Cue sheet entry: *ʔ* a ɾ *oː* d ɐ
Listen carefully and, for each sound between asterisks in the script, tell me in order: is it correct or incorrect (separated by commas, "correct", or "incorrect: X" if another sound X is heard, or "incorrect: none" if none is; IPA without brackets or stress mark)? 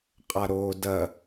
incorrect: qʼ, correct